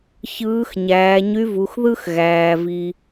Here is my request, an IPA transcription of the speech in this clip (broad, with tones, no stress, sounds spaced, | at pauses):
ç ɯː˧˥ x ɲ æː˩˧ ɲ y˧˥ v u˩˧ x ð ɯ˥ x ɣ æː˩ v i˩